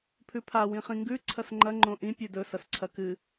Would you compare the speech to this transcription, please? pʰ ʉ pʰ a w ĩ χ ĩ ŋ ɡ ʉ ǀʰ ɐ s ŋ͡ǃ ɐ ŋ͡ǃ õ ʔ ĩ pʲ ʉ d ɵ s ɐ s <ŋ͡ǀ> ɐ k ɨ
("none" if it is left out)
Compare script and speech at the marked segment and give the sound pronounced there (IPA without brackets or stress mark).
ǀʰ